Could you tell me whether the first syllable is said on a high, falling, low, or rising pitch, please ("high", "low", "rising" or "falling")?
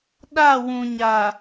falling